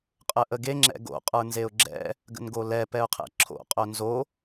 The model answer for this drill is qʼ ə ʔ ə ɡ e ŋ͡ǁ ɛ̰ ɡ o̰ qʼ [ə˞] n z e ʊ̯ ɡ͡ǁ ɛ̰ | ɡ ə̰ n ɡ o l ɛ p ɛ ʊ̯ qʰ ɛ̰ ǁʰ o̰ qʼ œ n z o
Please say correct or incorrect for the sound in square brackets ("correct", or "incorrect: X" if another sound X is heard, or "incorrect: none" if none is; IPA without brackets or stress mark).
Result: correct